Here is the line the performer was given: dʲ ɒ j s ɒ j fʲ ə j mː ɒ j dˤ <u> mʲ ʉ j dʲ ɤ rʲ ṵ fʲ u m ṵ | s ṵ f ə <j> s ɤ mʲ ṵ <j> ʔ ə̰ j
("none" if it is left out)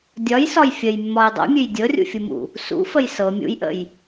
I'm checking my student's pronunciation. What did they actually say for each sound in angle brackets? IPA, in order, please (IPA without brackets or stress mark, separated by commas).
ṵ, j, j